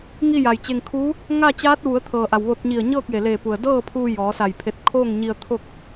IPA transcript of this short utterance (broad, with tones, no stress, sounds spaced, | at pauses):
ŋ i˥˨ j a˩ j t͡ɕ e˧ ŋ kʰ uː˧˥ | ŋ a˥˨ t͡ɕ aː˧˥ t̚ ʋ u˩˧ ə̯ t̪ʰ ɤː˩ ʔ a˩ w ʋ o˧ t̚ ɲ i˧˩ ə̯ ɲ ɤː˥˨ k̚ j e˩ l eː˧˩ p u˩ ə̯ d ɤː˥˨ pʰ uː˧ j ɔː˩˧ s a˧˩ j pʰ e˧ t̚ kʰ oː˥˨ ŋ ɲ i˧ ə̯ t̪ʰ o˥˨ k̚